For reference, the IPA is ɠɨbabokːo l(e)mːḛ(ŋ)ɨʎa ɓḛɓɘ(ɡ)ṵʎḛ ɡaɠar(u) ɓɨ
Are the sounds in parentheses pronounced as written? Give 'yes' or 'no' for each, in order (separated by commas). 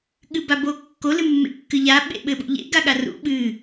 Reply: no, no, no, no